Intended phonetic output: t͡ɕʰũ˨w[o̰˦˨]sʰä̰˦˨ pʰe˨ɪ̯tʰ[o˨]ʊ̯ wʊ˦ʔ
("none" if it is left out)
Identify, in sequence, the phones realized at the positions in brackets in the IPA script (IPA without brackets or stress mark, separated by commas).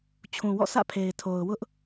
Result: ɔ̰˦˨, o˨